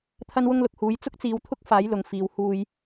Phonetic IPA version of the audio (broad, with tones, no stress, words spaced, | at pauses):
t̪ʰɐ˥nwʊ˥ŋlʊ˨k̚huː˨˥j t͡sʊ˥k̚t͡siː˨˧wt̪ʰʊ˥k̚ faː˨˥jlʊ˨ŋ fiː˨w huː˧j